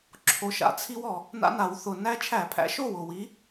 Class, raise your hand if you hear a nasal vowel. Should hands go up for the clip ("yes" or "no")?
no